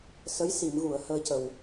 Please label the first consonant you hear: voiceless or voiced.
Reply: voiceless